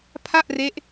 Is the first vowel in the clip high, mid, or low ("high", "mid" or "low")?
low